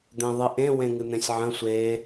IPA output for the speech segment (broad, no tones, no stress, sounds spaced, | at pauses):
d̪ ẽ ðˤ ɨ ʔ ẽ w ẽ ŋ ɨ n̪ ẽ sʲ ʕ ə̃ sʷ e